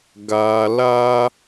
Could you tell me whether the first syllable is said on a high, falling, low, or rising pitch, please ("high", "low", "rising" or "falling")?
low